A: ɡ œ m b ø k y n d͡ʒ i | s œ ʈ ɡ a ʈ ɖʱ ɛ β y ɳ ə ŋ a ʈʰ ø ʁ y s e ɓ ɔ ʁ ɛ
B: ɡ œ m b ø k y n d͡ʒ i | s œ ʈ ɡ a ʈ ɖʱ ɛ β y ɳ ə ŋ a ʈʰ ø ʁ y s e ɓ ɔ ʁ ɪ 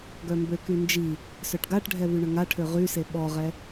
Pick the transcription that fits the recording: A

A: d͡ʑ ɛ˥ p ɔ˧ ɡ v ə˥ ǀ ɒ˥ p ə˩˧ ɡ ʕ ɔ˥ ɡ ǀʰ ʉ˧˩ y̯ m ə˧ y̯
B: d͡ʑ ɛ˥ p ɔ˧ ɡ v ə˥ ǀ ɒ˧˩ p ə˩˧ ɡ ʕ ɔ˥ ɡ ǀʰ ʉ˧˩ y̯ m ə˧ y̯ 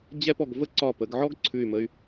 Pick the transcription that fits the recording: B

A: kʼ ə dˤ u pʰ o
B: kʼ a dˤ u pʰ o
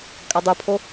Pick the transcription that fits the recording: B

